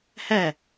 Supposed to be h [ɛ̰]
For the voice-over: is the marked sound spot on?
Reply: no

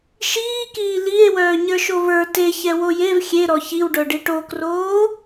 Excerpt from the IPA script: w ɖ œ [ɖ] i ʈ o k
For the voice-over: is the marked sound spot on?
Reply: yes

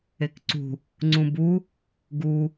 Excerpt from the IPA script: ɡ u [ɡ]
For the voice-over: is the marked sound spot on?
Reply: no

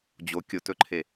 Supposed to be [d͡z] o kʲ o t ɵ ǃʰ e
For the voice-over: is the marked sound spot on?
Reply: no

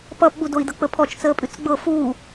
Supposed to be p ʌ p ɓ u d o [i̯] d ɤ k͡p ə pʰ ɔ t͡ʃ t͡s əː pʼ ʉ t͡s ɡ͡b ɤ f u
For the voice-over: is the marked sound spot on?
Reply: yes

